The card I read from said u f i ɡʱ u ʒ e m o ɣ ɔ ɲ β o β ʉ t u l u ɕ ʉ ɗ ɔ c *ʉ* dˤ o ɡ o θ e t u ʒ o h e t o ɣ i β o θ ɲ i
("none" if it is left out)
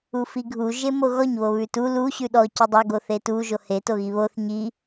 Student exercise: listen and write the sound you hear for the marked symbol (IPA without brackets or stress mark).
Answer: ʉ